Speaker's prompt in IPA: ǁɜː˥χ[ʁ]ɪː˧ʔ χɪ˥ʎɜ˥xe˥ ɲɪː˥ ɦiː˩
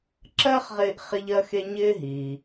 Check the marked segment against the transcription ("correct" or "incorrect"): correct